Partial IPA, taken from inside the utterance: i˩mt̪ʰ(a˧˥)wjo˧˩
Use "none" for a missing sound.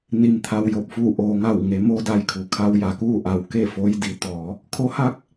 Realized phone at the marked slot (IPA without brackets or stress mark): a˩